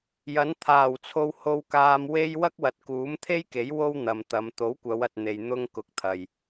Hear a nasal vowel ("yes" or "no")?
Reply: no